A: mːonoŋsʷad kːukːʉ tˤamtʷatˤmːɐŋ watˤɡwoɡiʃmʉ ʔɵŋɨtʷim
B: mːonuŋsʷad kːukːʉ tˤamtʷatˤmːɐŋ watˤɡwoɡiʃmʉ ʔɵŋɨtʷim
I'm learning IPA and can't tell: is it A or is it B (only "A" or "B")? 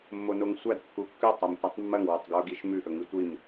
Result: A